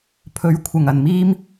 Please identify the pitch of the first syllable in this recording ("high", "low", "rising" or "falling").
rising